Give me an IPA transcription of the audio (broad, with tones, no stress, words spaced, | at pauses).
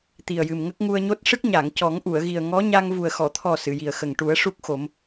t̪i˨˩ə̯jɨ˨˩mŋə˦˥k̚ ŋu˧ə̯ɲo˦˥t̚ ʂɨ˦˥k̚ɲa˨˩˨ŋ cɔ˨˩˦ŋʔu˨˩˨ə̯ ɣi˨˩ə̯ŋɔ˧˥ɲa˧ŋvu˨˩ə̯ xɔ˨˩˨t̪ʰɔ˨˩ sɨ˨˩˨ji˨˩ə̯xə˨˩ŋ ʈu˨˩˦ə̯ʂu˦˥k̚xo˨˩˦m